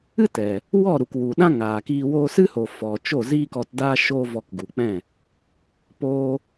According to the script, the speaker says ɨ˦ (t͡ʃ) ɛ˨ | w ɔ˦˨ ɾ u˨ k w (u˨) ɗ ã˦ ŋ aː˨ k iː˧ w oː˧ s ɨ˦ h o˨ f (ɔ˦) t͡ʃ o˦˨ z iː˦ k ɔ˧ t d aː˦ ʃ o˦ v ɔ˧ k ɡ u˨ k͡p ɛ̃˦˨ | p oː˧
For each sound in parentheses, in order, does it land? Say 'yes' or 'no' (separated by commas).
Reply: no, yes, no